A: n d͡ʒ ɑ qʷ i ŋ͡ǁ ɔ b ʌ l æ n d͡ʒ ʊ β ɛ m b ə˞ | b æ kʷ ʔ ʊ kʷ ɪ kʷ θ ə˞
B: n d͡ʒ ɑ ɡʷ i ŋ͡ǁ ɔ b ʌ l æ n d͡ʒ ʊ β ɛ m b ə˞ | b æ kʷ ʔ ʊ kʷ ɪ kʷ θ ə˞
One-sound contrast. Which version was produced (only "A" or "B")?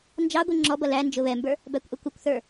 B